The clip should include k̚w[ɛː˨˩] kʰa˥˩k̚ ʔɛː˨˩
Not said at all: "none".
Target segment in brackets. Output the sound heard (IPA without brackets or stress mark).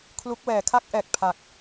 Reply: ɛː˩˦